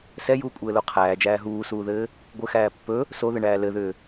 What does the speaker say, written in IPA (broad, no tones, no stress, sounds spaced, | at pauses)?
s ɛ j uː kʷʼ ɘː l o qʰ æː d͡ʒ æː ɦ uː s uː ð ɘː | ɡʷ ɘ x æː pː ɵ | s o ð ɘ ɳ æː l ɘ ð ʏː